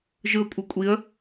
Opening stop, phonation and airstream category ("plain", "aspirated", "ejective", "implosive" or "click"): ejective